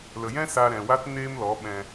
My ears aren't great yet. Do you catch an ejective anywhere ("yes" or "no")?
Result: no